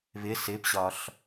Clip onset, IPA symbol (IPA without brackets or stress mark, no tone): β